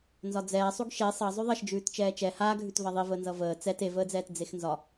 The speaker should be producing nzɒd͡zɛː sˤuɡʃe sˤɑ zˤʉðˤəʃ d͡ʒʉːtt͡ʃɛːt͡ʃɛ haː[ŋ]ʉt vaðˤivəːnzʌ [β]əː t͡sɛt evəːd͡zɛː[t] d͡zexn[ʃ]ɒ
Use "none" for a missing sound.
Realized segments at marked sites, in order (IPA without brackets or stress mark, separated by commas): ɡʱ, v, t, z